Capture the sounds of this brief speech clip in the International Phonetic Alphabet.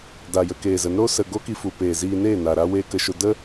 d a˨ j ə˧ k eː˨ z ə˨˦ n ɾ o˦ s ə˨ ɡ o˦ k i˧ f u˨ p eː˨ z iː˧ n eː˦˨ n a˨ ɾ a˦ w eː˦ k ə˧ ʃ o˧ d ə˦

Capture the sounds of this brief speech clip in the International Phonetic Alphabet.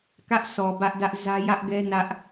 k ä˦ ʔ s ɔ˨ b ä˦ ʔ d ä˦ ʔ z ä˦ j ä˦ ʔ ɡ ɛ˦ n ä˦ ʔ

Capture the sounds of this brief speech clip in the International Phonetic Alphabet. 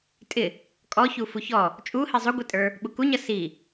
tʼ ɪ | kʼ ɔ ç u f u ç ɔ | t͡ʃʼ u h i zˤ u ɡʷ i tʼ ə˞ | ɓ u k u ɲ ʌ s i

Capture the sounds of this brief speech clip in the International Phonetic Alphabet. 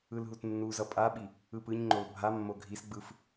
ɯ l ɦ u t nː u z ʌ pʼ a ɓ i | ɯ p ɯ ɲ ŋ͡ǃ o l bʱ a mː o ɡʱ i s ɡ͡b ɯ f

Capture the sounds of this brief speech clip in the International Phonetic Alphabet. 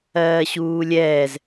ɜː ɕ uː lʲ ɛː z

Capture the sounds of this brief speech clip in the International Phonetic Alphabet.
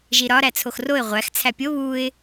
ʒ i ɾ ɒ ɾ æ t͡sʰ o x r o ɪ̯ ʁʷ æ x t͡sʰ æ pʲ o β u ɪ̯

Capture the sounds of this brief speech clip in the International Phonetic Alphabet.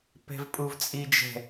p ɛ̤ v pʼ u v t͡sʼ i d͡ʒ ɛ̤

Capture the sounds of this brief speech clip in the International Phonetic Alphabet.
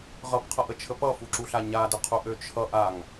ʁ ʌ p qʰ ʌ ʔ ə t͡ʃʰ ə p ʌ f u ǁ u ɬ a ɲ a d ə qʰ u ʔ ø t͡ʃʰ ʌ ʔ a ŋ

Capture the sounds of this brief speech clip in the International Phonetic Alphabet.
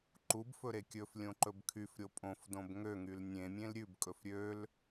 ǃ u b f ɵ ɾ e kʲ ɵ f lʲ õ ǃ ɵ b kʰ y f ɾʲ o pʼ õ f d õ b ŋ ø ŋ y l nʲ ẽ mʲ ẽ l ɾʲ ʉ b kʼ ɵ f ɾʲ ø l

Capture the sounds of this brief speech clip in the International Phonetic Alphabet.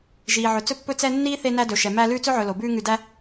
ʒ iː˩ ʕ ɵ˩ t͡s ɵ˦ pː ɵ˦ t͡s ɛ˦ nː iː˥ θ e˦ n æ˦ d ɵ˩ ʃ ɛ˩ m æ˦ l ʉː˥ t͡s ɵ˥ ʕ ɵ˨ l o˩ b ʉː˦ ŋ ʉ˨ d æ˦

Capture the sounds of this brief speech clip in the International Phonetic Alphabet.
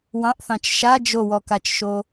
w ɑ̃ ʔ θ ɑ̃ t͡ʃ ʃ a d͡ʒ o w ɔ k a t͡ʃ ʃ o

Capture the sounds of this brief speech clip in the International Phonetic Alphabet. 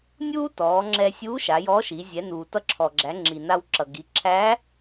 nʲ uː˥ t ɔː˩˧ ŋ͡ǁ ɛ˧ sʲ uː˧˥ ʃ a˩˧ j ɔː˧˥ ʃ i˩˧ zʲ ɛ˩˧ n uː˩ t ʌ˧˥ ǁʰ ɔ˩ ɡ͡ǁ æ˩˧ ŋ͡ǁ i˩ n a˧ w ǁ ʌ˩ ɡ i˩˧ ǁʰ æ˧˥

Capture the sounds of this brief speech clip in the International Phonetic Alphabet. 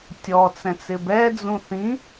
tʲ ɔ t͡s ɛ̃ t͡s ɪ b ɛ d͡z ũ θ ĩ

